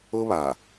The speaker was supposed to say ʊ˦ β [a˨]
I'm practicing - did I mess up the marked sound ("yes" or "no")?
no